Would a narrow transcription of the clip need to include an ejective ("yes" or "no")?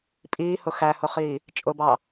yes